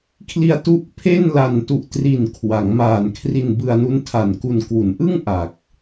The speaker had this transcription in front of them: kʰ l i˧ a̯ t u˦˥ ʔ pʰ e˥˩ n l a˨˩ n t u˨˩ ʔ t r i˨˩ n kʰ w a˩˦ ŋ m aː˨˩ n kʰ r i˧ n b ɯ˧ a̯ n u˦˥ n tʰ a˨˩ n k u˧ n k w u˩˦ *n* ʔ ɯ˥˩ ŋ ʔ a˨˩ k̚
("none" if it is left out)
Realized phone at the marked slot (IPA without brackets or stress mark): n